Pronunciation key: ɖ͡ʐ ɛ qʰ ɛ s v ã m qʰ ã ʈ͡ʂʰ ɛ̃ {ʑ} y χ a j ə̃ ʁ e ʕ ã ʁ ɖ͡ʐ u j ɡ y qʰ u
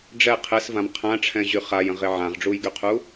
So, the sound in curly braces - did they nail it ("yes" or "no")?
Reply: yes